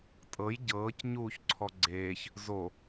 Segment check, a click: present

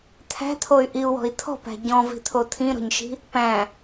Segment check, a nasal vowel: present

